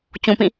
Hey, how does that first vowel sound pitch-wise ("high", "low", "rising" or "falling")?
low